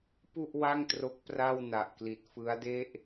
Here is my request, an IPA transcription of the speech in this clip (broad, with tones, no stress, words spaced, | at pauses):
pu˥˩ʔ wa˥˩ŋtro˦˥k̚ pra˥˩wna˨˩ʔkli˨˩t̚ fɯ˦˥a̯de˥˩ʔ